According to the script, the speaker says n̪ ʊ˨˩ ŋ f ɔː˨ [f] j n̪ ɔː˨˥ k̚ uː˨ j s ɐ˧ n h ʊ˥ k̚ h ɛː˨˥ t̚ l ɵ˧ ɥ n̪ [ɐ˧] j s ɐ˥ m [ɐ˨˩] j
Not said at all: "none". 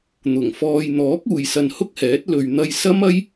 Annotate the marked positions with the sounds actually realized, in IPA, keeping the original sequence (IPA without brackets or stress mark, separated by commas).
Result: none, ɐ˧, ɐ˥